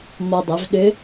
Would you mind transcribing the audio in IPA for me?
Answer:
mɔ˧ dˤɵ˩˧vɗʏ˧˥

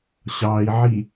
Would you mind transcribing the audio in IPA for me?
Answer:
ɕɑi̯ʕi

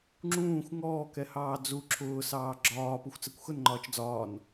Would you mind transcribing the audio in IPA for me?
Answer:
ŋ͡ǁũːxʷ ŋɔːkɛhɑː d͡zu ǁʰʊːsɑː ɡ͡ǁɒː puxʷt͡sɛkʷxʊnŋ͡ǃɒːt͡ʃ d͡zɒːn

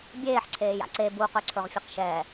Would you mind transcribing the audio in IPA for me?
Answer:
bʲeːħǀʰeːja̰ ǀe buqɵǀʰɵʁ fʲeqʃɛː

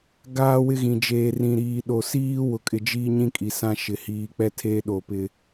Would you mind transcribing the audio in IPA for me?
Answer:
ɡaː˦wɪ˦ɣĩ˨ d͡ʒeː˨rĩ˨ɾiː˨ɗo˨ siː˦ wʊ˨kʼɪ˨d͡ʒiː˦ɲĩ˦ kʼi˨sã˦ʃɪ˨ hiː˨k͡pɛ˦tʰeː˦ ɗo˨pɪ˦

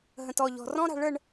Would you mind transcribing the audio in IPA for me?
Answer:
ɦə̃˧tɔ˥˧ʎɔ̤˧ rɔ̃˥ɾa̤˧ ɭə˥˧ɳ

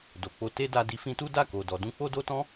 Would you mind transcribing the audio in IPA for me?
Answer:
do˨k͡po˧ te˦da˧di˧ fĩ˧tu˦ da˦˨ko˨dɔ˨ dũ˧k͡po˦do˦tɔ̃˦

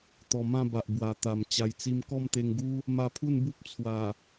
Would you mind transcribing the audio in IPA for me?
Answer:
t̪ɔ˨˩ mã˥˧ba˨ʔ bwa˨˩t̪a˨˩m t͡ɕa˧jt͡si˦m kɔ˥˧mt̪e˧ŋɡu˦ | ma˧pʰu˥˧nbu˦p̚ t͡sʰwa˨˩

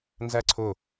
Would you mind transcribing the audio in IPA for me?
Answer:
nzæǀʰʊ

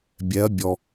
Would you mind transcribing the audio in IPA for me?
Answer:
bʲɛ˧˥ɐ̯ bʲɔ˧

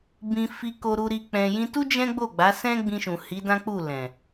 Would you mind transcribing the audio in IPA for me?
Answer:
bĩ˧ fi˧ko˧ɾu˧ɾi˧ k͡pɛ̃˧jĩ˦ tu˦ d͡ʒɛ̃˦ɡ͡bo˦˨ɡ͡ba˨˦ sɛ̃˦ɡ͡bĩ˧ʃũ˨ hi˨˦dã˦k͡pu˦˨ lɛ̃˨

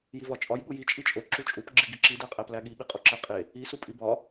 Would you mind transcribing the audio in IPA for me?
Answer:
jivɒt͡ʃʼɒj ɠuji t͡ʃʼit͡ʃʼo ǁut͡ʃʼup ɡ͡ǁiɡiǁi dæqʼæplæɠi ɓiqʼoǁæqʼe | i supʼibɒ

